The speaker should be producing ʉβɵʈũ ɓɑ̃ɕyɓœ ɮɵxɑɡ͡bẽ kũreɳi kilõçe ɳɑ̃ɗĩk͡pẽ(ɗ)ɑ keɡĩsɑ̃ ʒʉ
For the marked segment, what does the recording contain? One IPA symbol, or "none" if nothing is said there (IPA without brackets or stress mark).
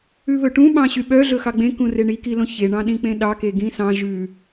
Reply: ɗ